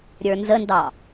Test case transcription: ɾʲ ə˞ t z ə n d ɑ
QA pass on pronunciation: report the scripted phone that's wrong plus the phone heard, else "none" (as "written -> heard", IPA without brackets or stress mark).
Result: t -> n